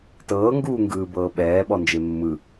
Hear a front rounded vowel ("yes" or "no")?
no